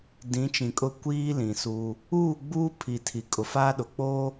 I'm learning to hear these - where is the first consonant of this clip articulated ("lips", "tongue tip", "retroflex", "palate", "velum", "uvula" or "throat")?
tongue tip